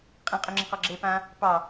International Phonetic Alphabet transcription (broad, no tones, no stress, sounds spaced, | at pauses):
qʼ ĩ qʼ y ŋ͡ǁ ĩ q ɔ ɡ͡ǁ e p ã | p ɑ